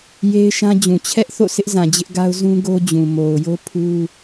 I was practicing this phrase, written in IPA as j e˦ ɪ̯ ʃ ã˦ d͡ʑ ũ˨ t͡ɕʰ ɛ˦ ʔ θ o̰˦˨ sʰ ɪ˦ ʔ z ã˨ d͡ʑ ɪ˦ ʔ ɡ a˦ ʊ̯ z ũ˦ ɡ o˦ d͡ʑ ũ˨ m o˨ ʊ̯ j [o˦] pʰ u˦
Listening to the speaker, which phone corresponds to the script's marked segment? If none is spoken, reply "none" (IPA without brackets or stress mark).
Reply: o˦